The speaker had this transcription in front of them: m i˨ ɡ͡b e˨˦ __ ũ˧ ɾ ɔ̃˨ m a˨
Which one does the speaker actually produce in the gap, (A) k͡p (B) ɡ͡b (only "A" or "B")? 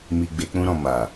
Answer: A